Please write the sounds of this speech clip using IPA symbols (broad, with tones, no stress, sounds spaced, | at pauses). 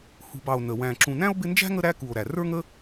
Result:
h ṳ˨ b ɑ˨ o̯ n ə˩ w æ̃˨ ǁ ũ˨ n æ̃˥ o̯ b ɪ˦ n d͡ʒ æ̤˥ ŋ ə˦ ɾ æ˥ k u˨ o̯ ɾ æ˩ r ə˞˥ ŋ ə˥